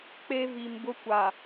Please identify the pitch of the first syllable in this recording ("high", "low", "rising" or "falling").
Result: high